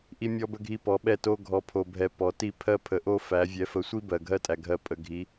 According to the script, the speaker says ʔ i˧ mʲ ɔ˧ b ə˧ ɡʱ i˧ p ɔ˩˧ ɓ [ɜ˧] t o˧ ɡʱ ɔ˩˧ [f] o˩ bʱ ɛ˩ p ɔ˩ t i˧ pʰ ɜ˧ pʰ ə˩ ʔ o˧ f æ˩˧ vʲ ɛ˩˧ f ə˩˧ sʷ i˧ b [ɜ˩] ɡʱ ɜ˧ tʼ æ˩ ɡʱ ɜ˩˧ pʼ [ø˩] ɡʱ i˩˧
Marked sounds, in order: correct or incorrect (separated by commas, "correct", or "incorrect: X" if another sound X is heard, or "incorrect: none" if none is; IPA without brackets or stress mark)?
incorrect: ɛ˧, incorrect: pʰ, correct, incorrect: ə˩